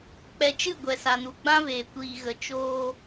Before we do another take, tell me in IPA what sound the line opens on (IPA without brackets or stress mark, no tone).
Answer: k͡p